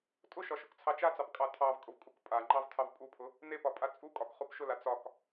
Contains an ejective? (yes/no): yes